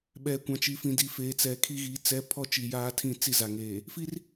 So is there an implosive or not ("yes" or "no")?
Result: yes